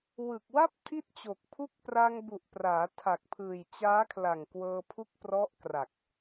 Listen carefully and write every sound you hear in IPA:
w ɯ˨˩ k̚ w a˥˩ p̚ tʰ i˥˩ t̚ t͡ɕ o˨˩ k̚ pʰ u˥˩ k̚ p r a˧ ŋ b u˨˩ ʔ p r aː˩˦ tʰ a˨˩ k̚ pʰ ɯː˨˩ j t͡ɕ aː˦˥ kʰ l a˨˩ ŋ k w ɤː˧ pʰ u˦˥ k̚ p r ɔ˦˥ ʔ k r a˨˩ k̚

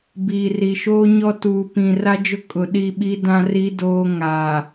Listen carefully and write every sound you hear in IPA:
b iː˨ r i˨ ʃ oː˦ ɲ ɔ˦ t uː˨ p ĩ˨ r a˦ d͡ʒ ʊ˦ kʼ ʊ˨ ɗ i˦˨ ɓ i˦ d ã˦ r i˦ d oː˦ ŋ a˨

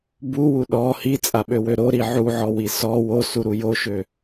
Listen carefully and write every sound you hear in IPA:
b u w u ɗ ɔ h i t͡sʼ a ɓ ø w ø ɾ o ɾ i ʕ u ʕ ɔ w i s ɔ w o s u ɾ u j o ʃ ø

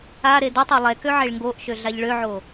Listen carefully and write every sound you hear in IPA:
a ɾ e d o tˤ ɛ lˠ ɛ k ø ʕ e ɭ ŋ ɡ o ʔ ʃ ø ɮ a ʎ ɭ ø ʕ o

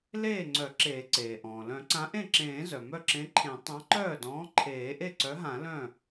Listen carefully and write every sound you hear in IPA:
l eː˥˩ ŋ͡ǀ œ˨˩˦ ǁ eː˨˩˦ ǀ eː˩ ʔ ɔ̃ː˩ l œ̃˨˩˦ ǀ ã˨˥ ʔ ẽ˥˩ ǁ ẽː˨˩˦ z œ˩ m œ˥˩ ǁ ẽ˨˥ ǃʰ ẽ˨˩˦ tˤ ã˨˥ ǃ œː˥˩ d ɔ̃ː˨˥ ǃʰ eː˨˩˦ ʔ e˥˩ ǀ œ˨˥ ɦ ã˨˩˦ l œ̃˥˩

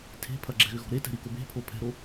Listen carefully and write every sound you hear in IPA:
tʰ e̤ pʰ ɐ ɡ͡ǁ ɛ̤ ɣ ʏ ɣ ɔ̤ ɾ e t ɛ̤ ɾ i k o b e̤ pʰ o pʰ ɛ̤ ɾ o

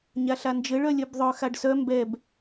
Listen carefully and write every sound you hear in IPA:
ɲ a ɬ a n d͡ʒ ɘ ɭ œ lʲ œ b ðˤ œ x a ɖ s œ m b ɛ b

